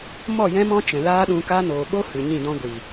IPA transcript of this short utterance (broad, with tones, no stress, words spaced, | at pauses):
mɔ˦˨jɛ̃˦mɔ̃˦t͡ʃɛ̃˨ laː˦ɗũ˧ka˦ noː˨ɓo˦ hɨ˨ɲĩ˦˨dɔ̃˦ɡʷi˨